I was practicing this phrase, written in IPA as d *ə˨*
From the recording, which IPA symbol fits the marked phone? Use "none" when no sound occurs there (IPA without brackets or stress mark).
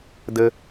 ə˦